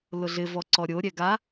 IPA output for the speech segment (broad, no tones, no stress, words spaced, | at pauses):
lʊɮɪvɔ ǀɔɾʲoɾʲɛ ɡa